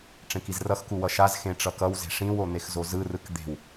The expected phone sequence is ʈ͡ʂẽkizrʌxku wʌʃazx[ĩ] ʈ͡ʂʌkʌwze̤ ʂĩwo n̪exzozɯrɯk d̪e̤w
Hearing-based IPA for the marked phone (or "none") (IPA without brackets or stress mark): ẽ